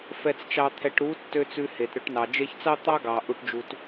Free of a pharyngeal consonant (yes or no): yes